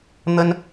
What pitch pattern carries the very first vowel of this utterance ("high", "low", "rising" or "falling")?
high